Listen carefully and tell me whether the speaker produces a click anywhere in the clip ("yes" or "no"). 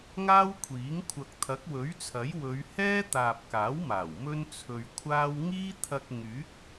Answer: no